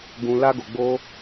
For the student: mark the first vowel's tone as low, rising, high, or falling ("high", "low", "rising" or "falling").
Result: high